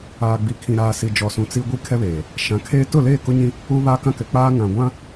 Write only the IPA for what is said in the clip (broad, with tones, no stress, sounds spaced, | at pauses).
aː˨ ɡ͡b i˨ kʰ ĩ˨ ɾ aː˨ s i˨ d͡ʒ ɔ˨ s ũ˨ t͡s i˦ ɡʷ i˦ kʰ ɛ˦ β eː˨ | ʃ ã˨˦ kʰ eː˦ t ʊ˦˨ l eː˦˨ k ʊ˦ ɲ ĩ˦ | uː˦ β aː˦ k ã˦ k ɛ˨ k͡p aː˦ ŋ ã˨ ɡʷ ã˦